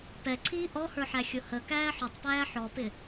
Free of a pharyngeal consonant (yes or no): no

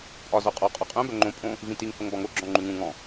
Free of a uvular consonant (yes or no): no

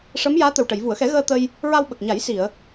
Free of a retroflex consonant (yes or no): no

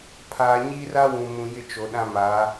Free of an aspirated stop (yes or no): no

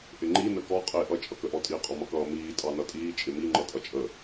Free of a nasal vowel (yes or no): yes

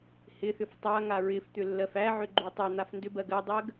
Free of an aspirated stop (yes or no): yes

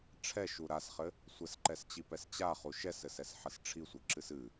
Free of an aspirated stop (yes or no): no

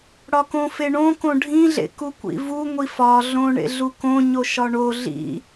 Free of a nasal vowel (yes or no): no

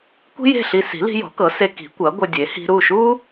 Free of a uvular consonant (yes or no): yes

